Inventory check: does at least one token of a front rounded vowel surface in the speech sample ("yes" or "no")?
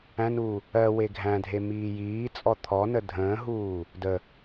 no